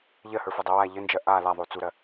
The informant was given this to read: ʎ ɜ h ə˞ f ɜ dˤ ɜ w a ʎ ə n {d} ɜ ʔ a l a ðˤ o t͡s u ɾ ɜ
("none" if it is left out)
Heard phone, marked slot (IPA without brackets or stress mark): d͡ʒ